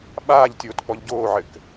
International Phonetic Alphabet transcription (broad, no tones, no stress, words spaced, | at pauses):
ɓaːʎtʲoːt k͡pɔʎɟoːʕɘk